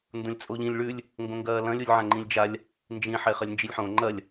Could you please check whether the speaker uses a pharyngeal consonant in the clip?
yes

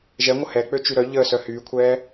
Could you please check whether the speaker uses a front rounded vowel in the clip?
yes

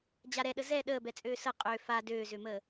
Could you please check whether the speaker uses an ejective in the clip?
yes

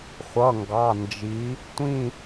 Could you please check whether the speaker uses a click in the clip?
no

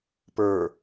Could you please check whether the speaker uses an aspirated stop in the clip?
no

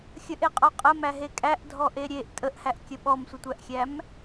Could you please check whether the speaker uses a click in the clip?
no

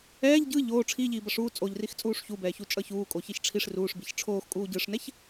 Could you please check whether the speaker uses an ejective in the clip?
yes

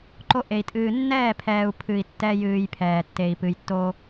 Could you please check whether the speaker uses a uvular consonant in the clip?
no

